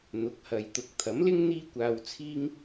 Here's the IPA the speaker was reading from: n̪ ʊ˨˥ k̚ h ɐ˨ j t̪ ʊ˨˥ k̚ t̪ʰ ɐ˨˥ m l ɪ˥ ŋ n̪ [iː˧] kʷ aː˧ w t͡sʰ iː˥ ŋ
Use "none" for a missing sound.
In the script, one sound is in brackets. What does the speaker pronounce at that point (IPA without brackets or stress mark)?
iː˥